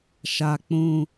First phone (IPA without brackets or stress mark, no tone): ʃ